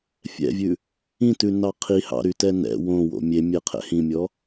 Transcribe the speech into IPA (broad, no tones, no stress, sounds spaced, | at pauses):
fʲ ɛ̰ vʲ ʉ | ĩ t ʉ n ɑ qʰ i h ɑ̰ ɾ y t ɛ n ɛ̰ w õ w o̰ mʲ e mʲ ɛ qʰ ɛ̰ h ĩ mʲ ɔ